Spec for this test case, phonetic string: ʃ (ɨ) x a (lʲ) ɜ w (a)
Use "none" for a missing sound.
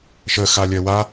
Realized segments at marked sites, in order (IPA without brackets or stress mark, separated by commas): ə, lʲ, a